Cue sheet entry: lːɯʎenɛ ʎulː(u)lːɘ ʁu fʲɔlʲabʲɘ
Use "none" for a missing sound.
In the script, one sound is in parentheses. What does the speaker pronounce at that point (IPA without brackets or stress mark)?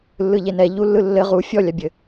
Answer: ɯ